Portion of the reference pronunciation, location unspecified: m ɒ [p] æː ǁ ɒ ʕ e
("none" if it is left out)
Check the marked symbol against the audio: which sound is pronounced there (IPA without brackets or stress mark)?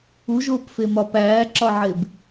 p